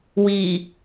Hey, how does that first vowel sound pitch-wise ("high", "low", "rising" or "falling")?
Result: low